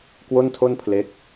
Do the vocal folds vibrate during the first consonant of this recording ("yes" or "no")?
no